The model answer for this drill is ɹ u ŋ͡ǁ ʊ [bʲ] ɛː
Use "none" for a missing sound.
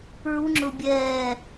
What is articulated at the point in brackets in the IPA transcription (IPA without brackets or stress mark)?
bʲ